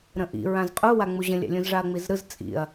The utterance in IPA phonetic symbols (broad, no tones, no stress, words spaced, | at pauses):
ɾə̃ʔḭ ɹãzqʼuwa ŋ͡muʑə̃lʲa̰ lʲũzʐaɐ̯ŋ͡mizɾɯz t͡sʼḭɐ̯